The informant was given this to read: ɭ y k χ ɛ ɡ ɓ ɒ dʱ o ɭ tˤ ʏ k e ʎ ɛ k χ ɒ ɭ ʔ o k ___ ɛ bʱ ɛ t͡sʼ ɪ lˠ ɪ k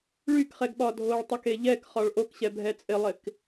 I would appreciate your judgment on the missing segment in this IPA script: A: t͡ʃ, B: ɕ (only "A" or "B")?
B